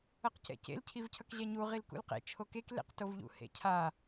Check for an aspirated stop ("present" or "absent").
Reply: present